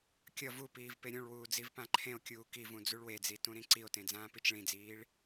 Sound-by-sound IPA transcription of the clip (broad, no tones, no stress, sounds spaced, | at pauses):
kʲ ʌ v u p iː v p e ɾʲ ũ ɭ w uː d͡z i v p ã ǃʰ ẽ o̯ kʲ uː k i v ũ d͡z u ɭ w e d͡z i t ũ ɾ ĩ ǀ i o̯ t ẽ d͡z ãː p i t͡ʃ ɭ ĩ d͡z iː ɭ